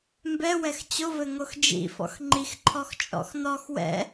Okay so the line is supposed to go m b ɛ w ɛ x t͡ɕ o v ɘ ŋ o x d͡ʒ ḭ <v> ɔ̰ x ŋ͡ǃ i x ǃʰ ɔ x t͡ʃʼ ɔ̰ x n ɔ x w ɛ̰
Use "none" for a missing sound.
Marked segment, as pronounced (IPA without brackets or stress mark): f